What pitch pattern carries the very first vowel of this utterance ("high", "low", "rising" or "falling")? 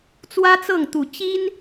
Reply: high